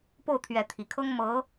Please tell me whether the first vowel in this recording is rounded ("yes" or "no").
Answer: yes